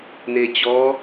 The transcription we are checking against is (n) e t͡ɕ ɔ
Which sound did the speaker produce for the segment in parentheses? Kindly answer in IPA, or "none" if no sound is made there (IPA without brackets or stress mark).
n